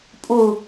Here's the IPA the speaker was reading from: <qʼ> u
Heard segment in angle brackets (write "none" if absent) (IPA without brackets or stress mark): pʼ